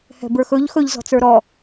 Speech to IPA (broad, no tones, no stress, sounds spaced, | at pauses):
h ɛ̤ b ə˞ x ɵ ʎ x ɵ ʎ z ɔ̤ t͡s ə˞ ɾ ɔ